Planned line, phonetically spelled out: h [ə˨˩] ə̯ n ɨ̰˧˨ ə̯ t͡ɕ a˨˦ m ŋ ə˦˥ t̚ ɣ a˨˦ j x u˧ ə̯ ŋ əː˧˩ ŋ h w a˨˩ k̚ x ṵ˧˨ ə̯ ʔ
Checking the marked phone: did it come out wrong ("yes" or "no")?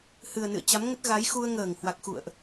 yes